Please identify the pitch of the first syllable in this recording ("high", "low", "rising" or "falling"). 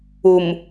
low